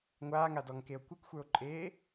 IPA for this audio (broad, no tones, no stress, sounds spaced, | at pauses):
ŋʷ aː ŋ a d ɔ ŋ k e o̯ kʷ ə˞ k xʷ ə˞ o̯ ǃʼ eː